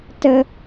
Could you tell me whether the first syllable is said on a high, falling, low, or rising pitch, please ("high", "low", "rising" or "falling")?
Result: high